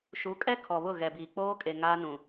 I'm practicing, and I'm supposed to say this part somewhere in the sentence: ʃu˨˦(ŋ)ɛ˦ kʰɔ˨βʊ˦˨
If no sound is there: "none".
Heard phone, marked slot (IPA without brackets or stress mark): kʼ